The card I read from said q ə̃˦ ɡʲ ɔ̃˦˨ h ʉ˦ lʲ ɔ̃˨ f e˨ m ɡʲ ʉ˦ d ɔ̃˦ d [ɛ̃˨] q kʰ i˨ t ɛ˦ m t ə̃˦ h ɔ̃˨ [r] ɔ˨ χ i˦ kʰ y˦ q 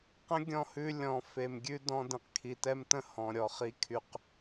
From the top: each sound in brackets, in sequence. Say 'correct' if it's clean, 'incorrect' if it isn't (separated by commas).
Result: incorrect, incorrect